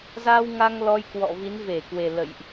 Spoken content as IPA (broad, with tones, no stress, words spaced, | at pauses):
za˧w ŋa˧ŋ lɔ˧jkwɔ̰˧˨ vi˨˦nve˧˩kwe˨˩ lə̰˧˨jʔ